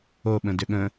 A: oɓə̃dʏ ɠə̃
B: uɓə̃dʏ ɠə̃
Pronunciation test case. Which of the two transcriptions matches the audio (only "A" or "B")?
A